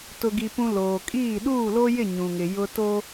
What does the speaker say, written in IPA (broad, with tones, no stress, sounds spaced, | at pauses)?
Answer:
t ʊ˦ ɡ i˦ p ũ˦ l oː˨ kʼ iː˦˨ ɗ uː˦˨ l o˦ j ɪ˦˨ ɲ ũ˨ ŋ ɪ˨ j ʊ˦ t o˦